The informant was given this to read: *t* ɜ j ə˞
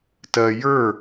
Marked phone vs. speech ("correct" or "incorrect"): correct